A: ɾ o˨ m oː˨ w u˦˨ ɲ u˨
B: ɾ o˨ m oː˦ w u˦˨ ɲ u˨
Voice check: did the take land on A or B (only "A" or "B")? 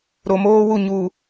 B